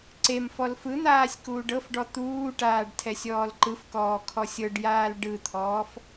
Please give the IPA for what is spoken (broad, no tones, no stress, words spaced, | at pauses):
ǀem fɔlfɯn̪aːsʲ kuːɖɤfɖɔ t̪uːʈaːɖ tʰɛsʲɔːlǃɯfkɔː kʰɔsʲɤɖjaːl ɖɯt̪ʰɔːf